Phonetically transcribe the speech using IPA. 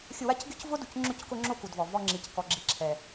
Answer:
xʲʊ˧ wa˦cɡʲʊ˦cvʊ˦du˨c ŋ͡ǁʊ˧ckʊ˧ŋ͡ǁo˧ ku˨dvɔ˨ vɔ˧ŋ͡ǁi˨ckɔ˨ ɡ͡ǁi˨ǁʰɛ˨

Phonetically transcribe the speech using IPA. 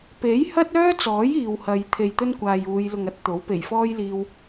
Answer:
pe˨˥jhɐ˥t̚œː˥t͡sɔː˨˥j iː˨whɐ˨˧j t̪ʰe˨jt̪ɵ˥nkʷaː˨j uː˨˧j lʊ˨ŋɐ˥t̚ t̪o˨˥w pe˨˩jfɔː˥jliː˧w

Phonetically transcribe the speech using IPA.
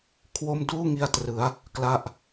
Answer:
kʰwo˥˩m duː˥˩ ŋi˧a̯trɯ˩˦a̯ | kla˥˩ʔ

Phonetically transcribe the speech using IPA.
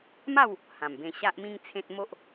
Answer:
ma˥˧w | hã˨˩mbẽ˧ ɕa˦ʔmĩ˦ŋ t͡sʰẽ˦t̚ mo˦ʔ

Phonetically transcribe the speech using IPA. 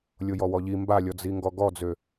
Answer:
lʲojɔwɔʎi mbalʲɔd͡zi ŋɡɔɡɔd͡zø

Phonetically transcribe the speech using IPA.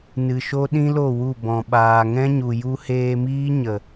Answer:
nɨ˨ʃo˦ ɗĩ˦lo˦˨ wu˦˨ bɔ̃˨ɓaː˨ ŋɛ̃˦ɲu˨ ju˧heː˧miː˦ ɲə˨

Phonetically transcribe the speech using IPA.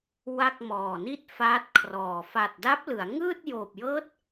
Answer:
wa˥˩k̚mɔː˨˩ni˥˩t̚ faː˦˥t̚kʰrɔː˨˩ fa˨˩t̚da˦˥p̚lɯ˩˦a̯ ŋɯː˥˩t̚joː˨˩p̚jɤː˦˥t̚

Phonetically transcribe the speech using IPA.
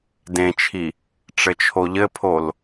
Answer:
dẽt͡ʃʰi | ʈ͡ʂɘt͡ʃʰoʎɘpʰol

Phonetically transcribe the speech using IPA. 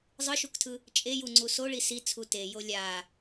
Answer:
zˤɯʃuktʰɯ | t͡ʃʼejuŋ͡ǀu soɭi sit͡sʰu tejo lʲa

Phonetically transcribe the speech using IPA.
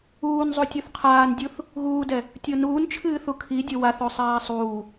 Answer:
uːnzˤu tʲuθqʰaːndʲuθ | ɣuːdɛ | tʲonuːnt͡ʃʰɨː θukʰidʲo waθosˤaː sˤuː

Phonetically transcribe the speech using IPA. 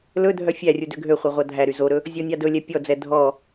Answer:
lɵ dʱœfʲærʲu døɡʱøχʷœ ʁʷɑdʱæɾy zoɾɵ | zʲɔnʲɑdɵlʲɛ pʲɔd͡zɛ dʱɔ

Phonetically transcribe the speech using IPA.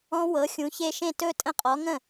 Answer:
ɔ̃˦˥wɤ˩˥ xʲũ˩˥çe˥˧ ʃẽ˥˩tɵ˥˧ tʼə̃˥˧qʼɔ˩˥ŋə̃˥˩

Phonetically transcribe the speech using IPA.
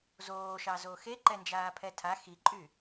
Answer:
zoːʃɑzo xeǃɛnd͡ʒaːpʰɛ tʰa xiǃʼy

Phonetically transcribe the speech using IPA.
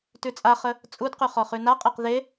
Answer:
tʉt͡sʼaχə | t͡sʼudqʉ χɔχʉnaqʼeq ðe

